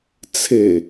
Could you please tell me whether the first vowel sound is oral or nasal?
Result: oral